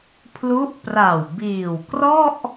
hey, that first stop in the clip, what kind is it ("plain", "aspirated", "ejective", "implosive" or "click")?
aspirated